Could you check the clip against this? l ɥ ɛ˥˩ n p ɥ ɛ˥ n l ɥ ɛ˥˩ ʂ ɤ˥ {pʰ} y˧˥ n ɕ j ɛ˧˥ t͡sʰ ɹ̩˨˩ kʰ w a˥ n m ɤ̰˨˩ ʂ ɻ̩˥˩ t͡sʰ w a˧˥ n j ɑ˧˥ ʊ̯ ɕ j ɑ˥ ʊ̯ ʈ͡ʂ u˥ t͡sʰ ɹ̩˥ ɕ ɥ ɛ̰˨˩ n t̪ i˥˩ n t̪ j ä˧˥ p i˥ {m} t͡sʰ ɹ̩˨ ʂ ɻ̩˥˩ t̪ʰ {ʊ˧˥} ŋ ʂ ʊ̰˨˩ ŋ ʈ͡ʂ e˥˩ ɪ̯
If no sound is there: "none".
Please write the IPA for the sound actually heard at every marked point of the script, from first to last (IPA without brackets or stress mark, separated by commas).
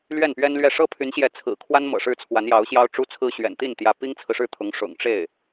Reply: pʰ, ŋ, ʊ˧˥